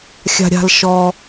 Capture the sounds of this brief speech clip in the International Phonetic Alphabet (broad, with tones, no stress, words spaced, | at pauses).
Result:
xʲa̤˥ɾʲa̤˥l ʃɔ˧